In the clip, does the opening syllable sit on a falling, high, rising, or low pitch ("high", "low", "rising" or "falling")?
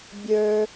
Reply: low